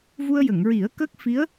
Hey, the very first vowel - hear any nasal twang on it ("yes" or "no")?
no